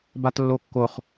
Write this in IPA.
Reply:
b a t lː o kː o χ

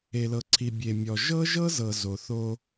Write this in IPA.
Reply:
e˨ l ɤ˨ ǀʰ i˨ bʲ e˨ mʲ ɔ˨ ʒ ɤ˦ ʒ ɤ˦ z ɤ˨ z o˨ θ o˦

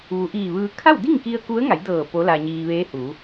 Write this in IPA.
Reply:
ʋ u˩˧ ʔ iː˧˩ ʋ ɯː˧ kʰ a˥˨ w d i˥˨ ŋ k i˧ ə̯ k u˧˥ ə̯ ŋ a˩˧ j d ɤː˧˩ p o˧˥ l a˧ ɲ iː˧ ʋ eː˧˥ h uː˩˧

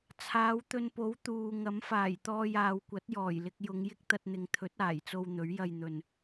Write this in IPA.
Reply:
t͡sʰ aː˨˧ w t̪ ɵ˧ n p o˨˥ w t̪ uː˨ ŋ ɐ˨˥ m f aː˨˩ j t̪ ɔː˧ j aː˨ w kʷ ɐ˨˥ t̚ j ɔː˨˩ j l ɪ˧ k̚ j ʊ˨˧ ŋ j ɪ˥ k̚ t̪ ɐ˧ t̚ n̪ ɪ˨ ŋ t̪ʰ ɵ˨˥ t̚ aː˨˩ j t͡s o˧ w n̪ ɵ˨˥ ɥ j ɐ˧ j n̪ ɵ˨ n

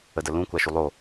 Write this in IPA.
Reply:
ə d ə l ũ kʷ a ʃ u lˠ o

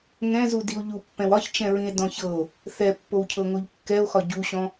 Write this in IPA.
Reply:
ŋ ɛ̃ z u d i o̯ ʎ u pː ɛ̃ w ɒ ç t͡ʃ ɛ̃ ɹ ĩ e̯ d ɔ̃ ç ɤ o̯ | θ ɛ pː o w cʰ ɤ ŋ o ʎ kː ɛ o̯ x ɒ ɟ u ɕ ɔ̃

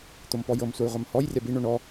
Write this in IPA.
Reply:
t̪ o m p ɔ j ɤ m sʷ a j ʁʷ a m h ɔ j rʲ a b i ɳ o ɳ ɔ

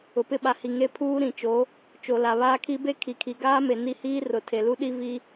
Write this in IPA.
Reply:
ʊ˨ p ɪ˦˨ ɓ a˨ h i˨ ŋ e˦ pʰ uː˦ ɾ ĩ˨ t͡ʃ o˨˦ | t͡ʃ o˨ l a˨ β aː˦ kʰ i˦ b e˦ kʰ i˨ kʰ i˨ ɡ aː˦ m e˨ n i˦ h iː˦ r ʊ˨ tʰ e˨ l u˦ ɗ i˦ v i˦

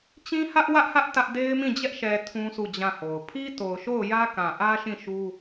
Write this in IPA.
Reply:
t͡ɕ ĩ˦ h ä˦ ʔ w ä˦ ʔ h ä˦ ʔ t ä˦ ʔ d e˦ ɪ̯ m ĩ˦˨ d͡ʑ ɛ˦ ʔ ʃ ɛ˨ tʰ ũ˦ s u˦˨ d͡ʑ ã˦˨ h o˨ ʊ̯ pʰ i˦ t o˨ ʊ̯ ʃ o˦˨ ʊ̯ j ä˦ k ã˨ ʔ ä˦ ʃ ĩ˦˨ ʃ u˦

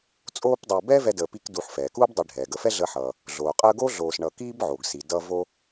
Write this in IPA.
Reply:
t͡sʼ oː˦ p dˤ u˨ b ɛ˥ v ɛ˦ d əː˨ p i˦ k d u˨ ħ f ɛː˩ k uː˥ b dˤ i˨ ɖʱ ɛː˩ ɡ ə˨ f ɛ˥ ɮ əː˦ ħ ʌː˨ | ɮ oː˩ qʼ əː˦ ɡ o˥ ɮ oː˨ s ɳ ʌ˨ k iː˥ b ʕ oː˩ ɡ s i˩ d ʌː˦ v o˦

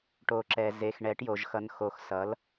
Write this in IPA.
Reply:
ʈ o˩ ǁ ɛ˩ z e˩ x ɳ ɛ˩˥ ʈ j o˩ ʒ x ʌ˩˧ n x o˩˧ x s ʌ˩˥ l

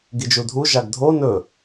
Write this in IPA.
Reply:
ɡ i d͡ʒ u dʱ u ʒ a ɡ dʱ o n ɵ

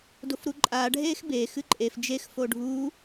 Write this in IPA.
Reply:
d o f ɾ u ǃʼ aː ɖʱ eː x b e x ɨ ǃʼ e f d͡ʒ e x f o ɖʱ uː

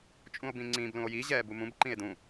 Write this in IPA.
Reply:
t͡ʃʼ ũ o̯ b ĩ ŋ͡ǀ ĩ b l ũ o̯ j i ʑ ɛː b u m ũ b ǃ ĩ e̯ d ũ

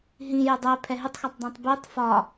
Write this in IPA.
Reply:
ɦ ĩ j ɪ dˤ ɛ pʰ ɛ ɦ ɪ tˤ x ɒ tˤ dˤ ɛ̃ tˤ b i tˤ f ɒ

